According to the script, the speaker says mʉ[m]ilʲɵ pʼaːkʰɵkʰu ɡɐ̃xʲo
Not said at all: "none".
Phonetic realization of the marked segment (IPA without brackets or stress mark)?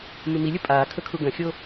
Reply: m